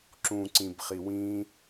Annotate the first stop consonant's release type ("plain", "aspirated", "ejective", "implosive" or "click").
click